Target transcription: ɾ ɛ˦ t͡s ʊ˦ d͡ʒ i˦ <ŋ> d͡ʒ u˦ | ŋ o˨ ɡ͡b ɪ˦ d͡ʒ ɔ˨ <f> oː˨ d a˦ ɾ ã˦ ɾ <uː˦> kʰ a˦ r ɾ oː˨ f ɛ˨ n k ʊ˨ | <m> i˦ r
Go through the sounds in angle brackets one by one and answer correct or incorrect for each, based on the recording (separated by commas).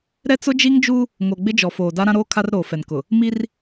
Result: correct, correct, incorrect, correct